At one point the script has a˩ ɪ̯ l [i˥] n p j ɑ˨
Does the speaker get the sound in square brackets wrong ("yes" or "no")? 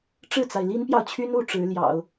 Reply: no